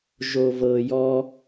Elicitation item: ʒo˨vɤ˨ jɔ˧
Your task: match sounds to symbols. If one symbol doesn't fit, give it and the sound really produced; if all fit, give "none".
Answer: none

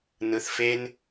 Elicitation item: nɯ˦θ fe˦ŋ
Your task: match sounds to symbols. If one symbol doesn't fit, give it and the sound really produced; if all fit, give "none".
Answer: ŋ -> n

